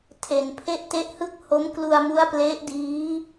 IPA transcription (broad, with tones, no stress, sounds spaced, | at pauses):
tʰ e˨˩ n pʰ e˥˩ ʔ t e˦˥ ʔ h ɯ˥˩ k̚ h o˦˥ m k l u˧ a̯ m u˦˥ a̯ p l e˦˥ ʔ d iː˦˥